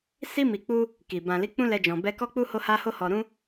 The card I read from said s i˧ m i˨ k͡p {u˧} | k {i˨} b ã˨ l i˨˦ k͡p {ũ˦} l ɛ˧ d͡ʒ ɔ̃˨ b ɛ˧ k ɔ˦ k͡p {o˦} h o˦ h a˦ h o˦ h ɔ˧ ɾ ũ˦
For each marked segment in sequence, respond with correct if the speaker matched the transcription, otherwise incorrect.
correct, correct, correct, incorrect: u˦

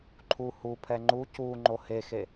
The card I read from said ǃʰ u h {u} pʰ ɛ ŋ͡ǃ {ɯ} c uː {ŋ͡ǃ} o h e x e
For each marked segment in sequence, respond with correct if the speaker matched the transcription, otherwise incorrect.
correct, incorrect: u, correct

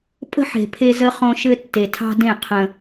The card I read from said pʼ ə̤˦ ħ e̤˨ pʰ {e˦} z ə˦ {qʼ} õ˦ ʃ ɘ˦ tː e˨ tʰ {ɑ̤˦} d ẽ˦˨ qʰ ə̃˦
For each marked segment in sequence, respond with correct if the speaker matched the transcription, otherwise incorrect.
correct, incorrect: χ, correct

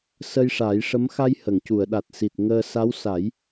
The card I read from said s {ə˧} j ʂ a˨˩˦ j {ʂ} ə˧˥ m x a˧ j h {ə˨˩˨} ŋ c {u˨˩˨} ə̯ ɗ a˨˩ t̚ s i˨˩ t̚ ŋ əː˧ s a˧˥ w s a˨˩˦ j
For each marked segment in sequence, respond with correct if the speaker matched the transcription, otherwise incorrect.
correct, correct, correct, correct

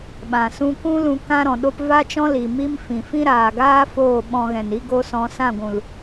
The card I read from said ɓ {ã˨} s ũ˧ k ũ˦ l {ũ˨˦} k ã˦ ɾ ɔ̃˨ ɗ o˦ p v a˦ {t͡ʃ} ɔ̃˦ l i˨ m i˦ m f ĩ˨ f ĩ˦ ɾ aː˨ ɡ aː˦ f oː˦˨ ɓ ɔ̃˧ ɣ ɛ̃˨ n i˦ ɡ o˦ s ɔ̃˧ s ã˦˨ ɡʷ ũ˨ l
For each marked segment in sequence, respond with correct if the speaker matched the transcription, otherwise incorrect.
correct, incorrect: ũ˧, correct

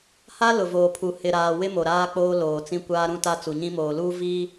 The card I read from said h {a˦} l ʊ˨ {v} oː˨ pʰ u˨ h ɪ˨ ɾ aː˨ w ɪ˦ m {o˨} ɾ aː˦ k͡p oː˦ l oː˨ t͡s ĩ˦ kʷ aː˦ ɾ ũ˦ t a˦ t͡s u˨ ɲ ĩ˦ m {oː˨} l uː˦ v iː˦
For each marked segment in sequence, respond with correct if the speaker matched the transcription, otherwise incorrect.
correct, correct, correct, correct

